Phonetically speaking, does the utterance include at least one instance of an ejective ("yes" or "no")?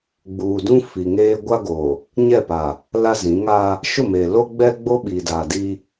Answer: no